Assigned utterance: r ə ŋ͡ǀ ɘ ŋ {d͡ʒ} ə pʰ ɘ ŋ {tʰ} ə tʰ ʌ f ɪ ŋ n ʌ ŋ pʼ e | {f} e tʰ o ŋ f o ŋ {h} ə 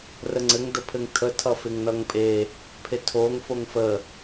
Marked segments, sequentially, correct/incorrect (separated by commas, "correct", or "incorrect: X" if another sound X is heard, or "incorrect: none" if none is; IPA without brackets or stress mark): incorrect: d, correct, incorrect: pʰ, incorrect: f